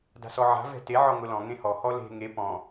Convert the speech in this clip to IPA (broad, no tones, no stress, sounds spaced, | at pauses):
d a̤ s ɔ ʕ a̤ v ɛ̤ t e ʕ ɔ ŋ ʊ l ɔ̃ ŋ ẽ h ɔ h ɔ l e̤ ŋ e p ɔ̃